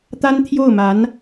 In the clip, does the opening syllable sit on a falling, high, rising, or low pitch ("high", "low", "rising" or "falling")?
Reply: high